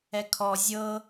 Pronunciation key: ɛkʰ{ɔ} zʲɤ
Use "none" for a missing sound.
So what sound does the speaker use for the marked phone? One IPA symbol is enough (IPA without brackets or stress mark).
ɔ